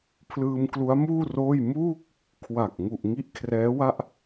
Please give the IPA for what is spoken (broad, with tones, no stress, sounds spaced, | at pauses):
pʰ l ɯː˧ m k l u˦˥ a̯ m uː˥˩ r oː˥˩ j m uː˥˩ k̚ | kʰ w a˨˩ k̚ ŋ u˨˩ ʔ ŋ i˦˥ ʔ kʰ r ɛː˦˥ w a˥˩ ʔ